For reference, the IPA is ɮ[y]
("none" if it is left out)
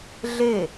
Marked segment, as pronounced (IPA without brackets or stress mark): e